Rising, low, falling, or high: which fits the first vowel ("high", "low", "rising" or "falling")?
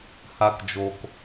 high